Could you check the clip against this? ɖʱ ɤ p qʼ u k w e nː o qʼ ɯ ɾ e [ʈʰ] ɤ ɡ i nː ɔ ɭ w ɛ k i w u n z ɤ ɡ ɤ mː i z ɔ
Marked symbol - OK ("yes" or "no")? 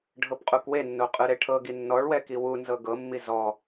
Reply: yes